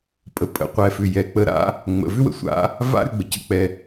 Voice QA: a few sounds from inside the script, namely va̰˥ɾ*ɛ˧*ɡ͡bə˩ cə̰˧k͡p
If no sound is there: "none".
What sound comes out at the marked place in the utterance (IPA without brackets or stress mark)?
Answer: ʏ˧